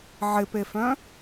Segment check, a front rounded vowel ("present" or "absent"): present